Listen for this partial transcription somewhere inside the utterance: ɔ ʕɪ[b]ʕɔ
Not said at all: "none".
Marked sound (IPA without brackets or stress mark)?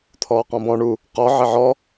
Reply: none